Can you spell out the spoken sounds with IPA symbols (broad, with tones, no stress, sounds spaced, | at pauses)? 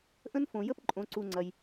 ʔ ə̃˦ n f õ˨ j ə˦ p ǃʼ õ˧ ǀ u˧ ŋ͡ǀ ɐ˧ j